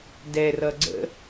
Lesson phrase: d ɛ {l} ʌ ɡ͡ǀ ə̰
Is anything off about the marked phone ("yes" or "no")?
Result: yes